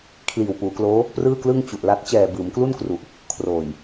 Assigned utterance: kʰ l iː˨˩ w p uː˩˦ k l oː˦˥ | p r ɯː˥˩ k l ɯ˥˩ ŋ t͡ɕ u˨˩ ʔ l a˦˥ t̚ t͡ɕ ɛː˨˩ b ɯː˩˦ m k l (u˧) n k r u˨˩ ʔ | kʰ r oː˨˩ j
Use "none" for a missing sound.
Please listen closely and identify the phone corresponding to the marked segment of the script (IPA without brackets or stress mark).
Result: u˥˩